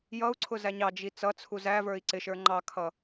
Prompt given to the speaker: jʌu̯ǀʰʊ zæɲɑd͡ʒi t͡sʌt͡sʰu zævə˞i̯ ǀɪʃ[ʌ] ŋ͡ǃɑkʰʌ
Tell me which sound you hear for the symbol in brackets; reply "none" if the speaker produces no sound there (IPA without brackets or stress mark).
ə˞